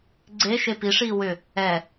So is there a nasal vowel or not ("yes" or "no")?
no